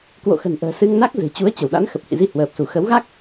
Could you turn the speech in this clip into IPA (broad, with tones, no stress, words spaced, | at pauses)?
kwo̰˧˨xə̤˨˩nʔə̤ː˨˩ sɨ˧ŋna˦˥k̚ zɨ̤˨˩t͡ɕu˨˦ə̯ t͡ɕə˧˩wɗa̰˧˥n xə˨˩p̚hḭ˧˨zi˧ hwəː˨˩p̚su˧˩ xə˨˦wɣa˦˥k̚